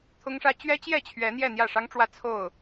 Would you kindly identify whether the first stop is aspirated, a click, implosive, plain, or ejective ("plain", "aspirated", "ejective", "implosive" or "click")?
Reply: aspirated